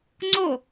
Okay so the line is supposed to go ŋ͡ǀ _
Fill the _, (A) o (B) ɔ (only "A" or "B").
A